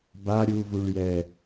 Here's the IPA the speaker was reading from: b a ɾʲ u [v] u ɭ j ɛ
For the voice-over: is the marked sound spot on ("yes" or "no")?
yes